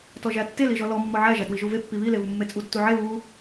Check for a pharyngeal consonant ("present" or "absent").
present